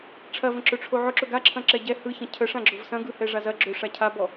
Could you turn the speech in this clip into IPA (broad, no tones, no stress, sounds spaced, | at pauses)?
ʈ͡ʂʰ ɐ v ə̃ ǁ ɵ ʈ͡ʂʰ o ʕ ʊ ǁ ɵ ɡ a ǁʰ ɐ̃ ǁ ɛ ɟ ɛ h ɯ ç ɐ̃ cʰ ə ʂ ã ɡ͡ǁ ʊ v s ɐ̃ ɡ ɯ h ɛ ʐ a z ɐ ɡ͡ǁ ɵ ʂ a cʰ a b ɔ